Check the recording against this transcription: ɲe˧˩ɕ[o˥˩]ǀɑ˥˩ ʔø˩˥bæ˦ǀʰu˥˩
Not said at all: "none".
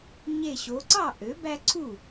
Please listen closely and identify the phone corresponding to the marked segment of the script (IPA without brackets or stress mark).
o˩˧